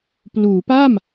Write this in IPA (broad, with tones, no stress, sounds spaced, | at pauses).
p l uː˩˦ p a˥˩ m